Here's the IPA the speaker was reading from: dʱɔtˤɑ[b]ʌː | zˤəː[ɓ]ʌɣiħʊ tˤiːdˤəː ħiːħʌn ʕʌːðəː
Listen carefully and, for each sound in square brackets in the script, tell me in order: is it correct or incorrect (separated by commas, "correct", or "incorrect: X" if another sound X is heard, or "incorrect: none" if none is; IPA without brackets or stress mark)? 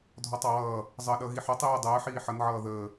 incorrect: w, incorrect: ɗ